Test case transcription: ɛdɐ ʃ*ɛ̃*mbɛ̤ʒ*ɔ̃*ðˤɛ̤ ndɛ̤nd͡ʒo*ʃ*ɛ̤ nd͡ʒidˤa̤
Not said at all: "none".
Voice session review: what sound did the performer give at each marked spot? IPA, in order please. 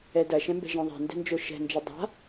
ɛ̃, ɔ̃, ʃ

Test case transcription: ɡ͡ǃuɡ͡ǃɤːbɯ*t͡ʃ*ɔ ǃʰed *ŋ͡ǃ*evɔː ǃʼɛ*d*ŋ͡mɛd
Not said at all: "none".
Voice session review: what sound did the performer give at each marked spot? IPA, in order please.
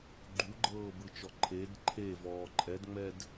t͡ʃ, ǃʰ, d

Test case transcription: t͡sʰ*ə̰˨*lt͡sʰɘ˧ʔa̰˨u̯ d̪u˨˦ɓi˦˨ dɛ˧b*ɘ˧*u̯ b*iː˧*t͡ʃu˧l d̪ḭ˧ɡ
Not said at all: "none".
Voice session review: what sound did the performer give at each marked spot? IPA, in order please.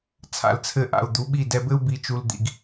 a̰˨, ɘ˦, i˧

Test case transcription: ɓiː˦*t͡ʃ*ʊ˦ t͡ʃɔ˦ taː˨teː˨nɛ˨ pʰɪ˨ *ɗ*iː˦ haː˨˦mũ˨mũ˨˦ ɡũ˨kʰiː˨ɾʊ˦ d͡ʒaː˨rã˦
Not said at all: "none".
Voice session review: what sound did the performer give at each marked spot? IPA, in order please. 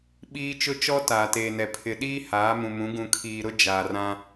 t͡ʃ, ɗ

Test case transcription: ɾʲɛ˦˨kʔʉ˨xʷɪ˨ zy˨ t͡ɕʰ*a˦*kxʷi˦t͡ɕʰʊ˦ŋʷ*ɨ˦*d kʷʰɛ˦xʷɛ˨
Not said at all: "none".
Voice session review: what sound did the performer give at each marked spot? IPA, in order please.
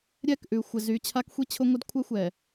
a˦, ɪ˦

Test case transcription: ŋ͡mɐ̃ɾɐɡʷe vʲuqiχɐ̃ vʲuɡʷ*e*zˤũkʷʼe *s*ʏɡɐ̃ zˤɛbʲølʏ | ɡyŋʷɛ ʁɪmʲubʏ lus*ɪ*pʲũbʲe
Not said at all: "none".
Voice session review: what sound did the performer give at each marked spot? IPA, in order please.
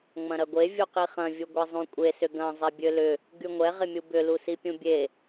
e, s, i

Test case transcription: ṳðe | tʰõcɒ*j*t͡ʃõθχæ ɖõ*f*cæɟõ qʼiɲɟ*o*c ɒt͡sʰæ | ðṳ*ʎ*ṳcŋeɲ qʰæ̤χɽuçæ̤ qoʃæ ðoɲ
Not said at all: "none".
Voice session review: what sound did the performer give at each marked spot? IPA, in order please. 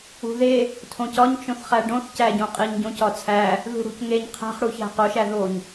ɲ, θ, õ, ɽ

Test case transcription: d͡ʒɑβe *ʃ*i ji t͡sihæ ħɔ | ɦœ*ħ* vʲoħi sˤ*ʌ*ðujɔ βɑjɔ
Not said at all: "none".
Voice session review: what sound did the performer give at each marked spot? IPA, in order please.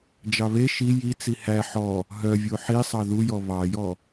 ʃ, none, ɑ

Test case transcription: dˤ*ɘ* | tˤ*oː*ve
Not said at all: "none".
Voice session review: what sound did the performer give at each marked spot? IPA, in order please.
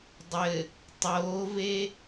ɘ, oː

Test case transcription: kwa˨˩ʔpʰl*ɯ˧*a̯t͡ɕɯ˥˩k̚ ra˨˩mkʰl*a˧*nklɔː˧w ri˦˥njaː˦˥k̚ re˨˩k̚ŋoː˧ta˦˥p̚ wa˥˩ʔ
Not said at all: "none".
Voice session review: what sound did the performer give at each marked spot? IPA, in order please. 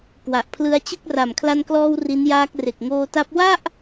ɯ˧, a˧

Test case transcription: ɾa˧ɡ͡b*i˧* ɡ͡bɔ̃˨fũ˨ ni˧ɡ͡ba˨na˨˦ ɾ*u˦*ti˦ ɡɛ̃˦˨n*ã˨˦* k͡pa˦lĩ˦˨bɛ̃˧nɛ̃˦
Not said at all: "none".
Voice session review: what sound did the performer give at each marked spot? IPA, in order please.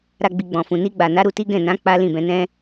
i˨, u˧, ã˨˦

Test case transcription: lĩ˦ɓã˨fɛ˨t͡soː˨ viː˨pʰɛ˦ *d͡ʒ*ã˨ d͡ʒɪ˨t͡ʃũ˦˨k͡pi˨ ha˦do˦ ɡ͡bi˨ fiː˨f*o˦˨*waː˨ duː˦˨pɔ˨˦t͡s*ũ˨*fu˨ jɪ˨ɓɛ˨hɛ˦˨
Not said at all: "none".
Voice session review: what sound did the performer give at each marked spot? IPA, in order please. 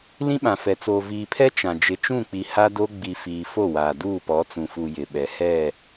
t͡ʃ, o˦˨, ũ˨

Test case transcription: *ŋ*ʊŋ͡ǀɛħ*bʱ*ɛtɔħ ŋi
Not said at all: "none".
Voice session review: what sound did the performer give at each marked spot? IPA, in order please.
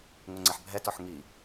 ŋ, bʱ

